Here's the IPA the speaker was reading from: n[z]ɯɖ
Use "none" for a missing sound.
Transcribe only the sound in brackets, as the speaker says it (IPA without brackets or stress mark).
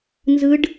z